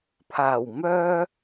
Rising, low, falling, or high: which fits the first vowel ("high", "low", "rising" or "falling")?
low